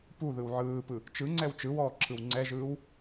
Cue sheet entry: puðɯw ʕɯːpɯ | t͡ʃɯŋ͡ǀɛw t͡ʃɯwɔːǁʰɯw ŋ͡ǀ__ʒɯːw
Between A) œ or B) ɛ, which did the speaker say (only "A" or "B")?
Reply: B